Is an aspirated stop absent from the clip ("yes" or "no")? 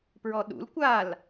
yes